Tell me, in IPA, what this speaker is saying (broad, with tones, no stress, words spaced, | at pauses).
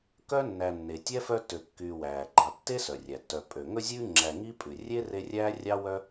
kœ˥ nːæ˨ nːe˩tʲɛ˥fœ˦ tø˨kːyː˨wæː˩ ɡ͡ǃɑ˨tːe˥ sœ˩rʲæ˩tːœ˨ pʼø˩ ŋɵ˦zʲʉː˦ ŋ͡ǁæ˨ ŋi˥pʼʉ˩ rʲe˥ re˦rʲæː˥rʲɑ˥ wœ˥